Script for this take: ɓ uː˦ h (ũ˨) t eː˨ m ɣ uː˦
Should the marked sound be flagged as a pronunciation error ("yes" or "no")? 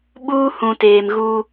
no